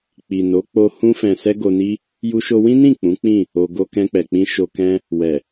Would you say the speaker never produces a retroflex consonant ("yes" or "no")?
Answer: yes